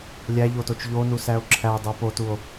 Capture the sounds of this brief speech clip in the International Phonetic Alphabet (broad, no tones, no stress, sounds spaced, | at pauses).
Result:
lʲ æ ʎ o t o t͡ʃ ʎ o n u s æ o̯ ǁʰ æ dˤ u p o t u o̯